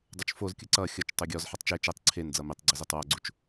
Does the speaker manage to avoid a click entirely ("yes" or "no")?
no